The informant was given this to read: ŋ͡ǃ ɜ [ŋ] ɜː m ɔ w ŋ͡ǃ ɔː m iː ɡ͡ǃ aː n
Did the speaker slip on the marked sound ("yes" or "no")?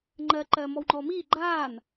yes